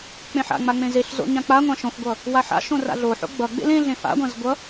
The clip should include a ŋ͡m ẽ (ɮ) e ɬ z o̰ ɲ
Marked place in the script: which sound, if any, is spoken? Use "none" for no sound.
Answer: z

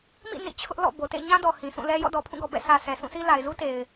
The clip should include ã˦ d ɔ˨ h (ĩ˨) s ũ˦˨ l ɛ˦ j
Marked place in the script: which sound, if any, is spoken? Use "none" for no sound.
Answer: ĩ˨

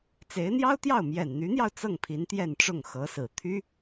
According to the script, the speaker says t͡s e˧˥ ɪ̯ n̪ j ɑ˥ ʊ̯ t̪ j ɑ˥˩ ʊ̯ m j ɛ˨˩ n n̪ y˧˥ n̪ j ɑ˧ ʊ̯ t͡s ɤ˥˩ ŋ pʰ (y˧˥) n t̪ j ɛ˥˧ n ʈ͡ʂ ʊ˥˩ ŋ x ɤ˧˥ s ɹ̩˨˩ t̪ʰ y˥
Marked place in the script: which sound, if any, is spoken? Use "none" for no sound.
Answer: i˧˥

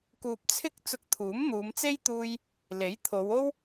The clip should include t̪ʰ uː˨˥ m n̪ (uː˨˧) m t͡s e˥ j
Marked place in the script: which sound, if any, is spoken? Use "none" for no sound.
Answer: uː˨˧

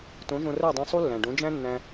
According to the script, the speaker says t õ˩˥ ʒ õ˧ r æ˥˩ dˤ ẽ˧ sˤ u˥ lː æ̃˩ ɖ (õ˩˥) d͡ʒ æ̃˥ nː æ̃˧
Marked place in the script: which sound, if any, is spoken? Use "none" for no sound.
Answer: õ˩˥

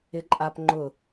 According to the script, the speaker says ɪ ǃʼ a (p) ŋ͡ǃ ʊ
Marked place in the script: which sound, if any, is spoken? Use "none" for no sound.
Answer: p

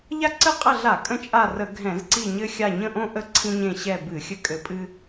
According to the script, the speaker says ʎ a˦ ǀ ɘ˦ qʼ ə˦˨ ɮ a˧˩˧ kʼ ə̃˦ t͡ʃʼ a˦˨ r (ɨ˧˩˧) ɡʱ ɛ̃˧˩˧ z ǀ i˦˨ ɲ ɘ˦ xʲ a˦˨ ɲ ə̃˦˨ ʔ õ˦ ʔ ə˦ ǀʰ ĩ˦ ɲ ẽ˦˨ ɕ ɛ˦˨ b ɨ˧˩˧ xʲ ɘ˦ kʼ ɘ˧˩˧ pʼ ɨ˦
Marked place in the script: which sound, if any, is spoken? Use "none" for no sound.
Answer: ə˧˩˧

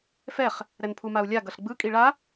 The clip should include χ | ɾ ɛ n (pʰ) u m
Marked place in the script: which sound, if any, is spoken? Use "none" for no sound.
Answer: pʰ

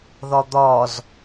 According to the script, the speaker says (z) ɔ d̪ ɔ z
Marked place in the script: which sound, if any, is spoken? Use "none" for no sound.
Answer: ð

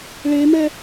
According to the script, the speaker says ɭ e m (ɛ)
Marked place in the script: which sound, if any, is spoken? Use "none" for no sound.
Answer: ɛ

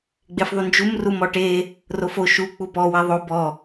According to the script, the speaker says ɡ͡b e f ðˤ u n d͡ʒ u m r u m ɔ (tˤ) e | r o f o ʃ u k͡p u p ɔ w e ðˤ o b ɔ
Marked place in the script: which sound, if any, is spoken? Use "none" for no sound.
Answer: ʈ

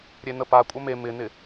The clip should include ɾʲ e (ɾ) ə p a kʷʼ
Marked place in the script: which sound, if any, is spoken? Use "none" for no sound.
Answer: n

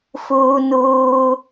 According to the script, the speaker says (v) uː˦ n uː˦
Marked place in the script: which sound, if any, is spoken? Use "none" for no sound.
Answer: f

